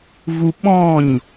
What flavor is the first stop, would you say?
implosive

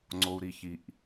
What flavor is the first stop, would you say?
click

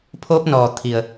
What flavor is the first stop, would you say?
aspirated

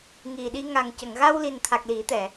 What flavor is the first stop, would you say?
implosive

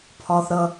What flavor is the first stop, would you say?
aspirated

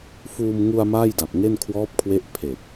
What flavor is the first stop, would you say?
plain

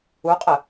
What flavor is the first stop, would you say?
ejective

